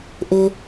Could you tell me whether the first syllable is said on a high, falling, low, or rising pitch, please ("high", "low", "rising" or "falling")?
high